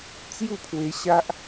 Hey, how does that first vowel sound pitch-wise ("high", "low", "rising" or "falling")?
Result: falling